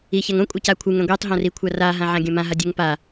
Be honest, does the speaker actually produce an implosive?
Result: no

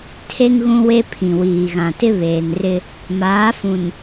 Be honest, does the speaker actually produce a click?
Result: no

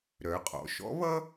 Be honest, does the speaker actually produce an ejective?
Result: yes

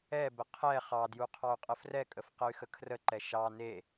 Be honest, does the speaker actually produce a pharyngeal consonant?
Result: no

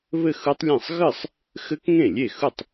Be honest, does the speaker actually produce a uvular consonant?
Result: no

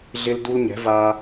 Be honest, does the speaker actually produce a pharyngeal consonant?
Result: no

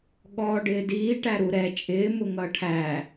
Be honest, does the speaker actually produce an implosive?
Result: yes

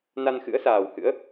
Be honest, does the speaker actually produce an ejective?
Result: no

